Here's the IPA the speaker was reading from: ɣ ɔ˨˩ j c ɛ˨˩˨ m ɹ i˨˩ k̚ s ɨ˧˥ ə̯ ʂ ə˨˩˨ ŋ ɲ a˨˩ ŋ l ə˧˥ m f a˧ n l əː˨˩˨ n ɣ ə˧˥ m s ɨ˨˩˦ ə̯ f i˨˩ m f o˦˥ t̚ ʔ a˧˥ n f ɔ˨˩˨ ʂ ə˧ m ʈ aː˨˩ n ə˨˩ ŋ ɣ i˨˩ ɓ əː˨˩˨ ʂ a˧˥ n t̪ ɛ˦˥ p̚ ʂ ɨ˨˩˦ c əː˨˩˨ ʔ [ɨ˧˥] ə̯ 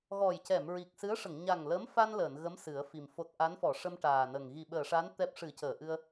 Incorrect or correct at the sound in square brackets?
incorrect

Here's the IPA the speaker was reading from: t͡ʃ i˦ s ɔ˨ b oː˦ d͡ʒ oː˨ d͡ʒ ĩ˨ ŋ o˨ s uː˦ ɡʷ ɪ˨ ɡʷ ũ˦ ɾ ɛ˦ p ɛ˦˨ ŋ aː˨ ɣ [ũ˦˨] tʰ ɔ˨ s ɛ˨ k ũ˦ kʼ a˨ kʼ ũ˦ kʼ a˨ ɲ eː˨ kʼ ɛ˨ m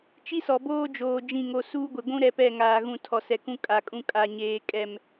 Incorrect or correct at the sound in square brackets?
incorrect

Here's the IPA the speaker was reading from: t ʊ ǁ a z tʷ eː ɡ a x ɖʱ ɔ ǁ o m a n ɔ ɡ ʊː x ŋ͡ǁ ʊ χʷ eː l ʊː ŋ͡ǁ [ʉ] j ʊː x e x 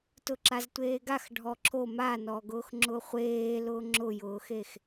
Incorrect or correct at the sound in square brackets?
incorrect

